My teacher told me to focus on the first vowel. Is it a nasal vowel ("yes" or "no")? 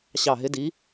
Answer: no